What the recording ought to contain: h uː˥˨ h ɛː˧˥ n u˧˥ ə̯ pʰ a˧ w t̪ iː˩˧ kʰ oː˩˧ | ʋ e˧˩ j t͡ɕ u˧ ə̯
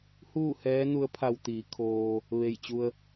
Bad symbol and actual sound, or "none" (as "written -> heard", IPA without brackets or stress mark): oː˩˧ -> oː˧